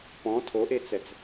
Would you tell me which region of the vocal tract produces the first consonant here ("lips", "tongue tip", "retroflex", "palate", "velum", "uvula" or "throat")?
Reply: lips